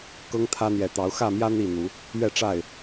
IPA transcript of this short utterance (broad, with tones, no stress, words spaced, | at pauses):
kɤ˦ŋt̪ʰä˦ n̪jɛ˨˩t̪ɑ˨˦ʊ̯ xä˥˨mjä˦ n̪i˥˨n̪u˨˦ | ɥɛ˥˨ʈ͡ʂa˥˨ɪ̯